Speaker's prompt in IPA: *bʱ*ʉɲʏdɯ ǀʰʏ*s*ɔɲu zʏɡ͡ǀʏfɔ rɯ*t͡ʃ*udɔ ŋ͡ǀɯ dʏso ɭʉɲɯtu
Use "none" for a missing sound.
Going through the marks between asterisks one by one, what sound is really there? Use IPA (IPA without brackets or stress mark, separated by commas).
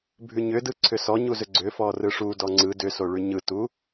bʱ, s, ʂ